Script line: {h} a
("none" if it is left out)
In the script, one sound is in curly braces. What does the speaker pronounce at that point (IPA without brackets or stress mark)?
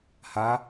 h